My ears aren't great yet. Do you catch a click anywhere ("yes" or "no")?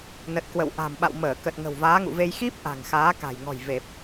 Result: no